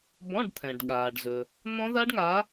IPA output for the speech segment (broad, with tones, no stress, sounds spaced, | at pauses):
b ɔ̃˧˥˧ ɖ t̪ʰ ɛ̃˩ ɖ ɠ aː˩ ɖ z ɵ˩ | n̪ ɔ̃˦˥ ð a˦˥ ɖ ŋ aː˨˦